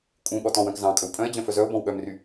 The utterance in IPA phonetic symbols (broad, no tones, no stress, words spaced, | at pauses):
kʼũɠɔ tɔ̃wœ̃k zɑ̃ kʼɵwpʼœ̃e̯d͡ʑœ̃ fœzœo̯bɔ̃w ɠœmry